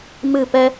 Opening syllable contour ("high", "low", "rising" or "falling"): falling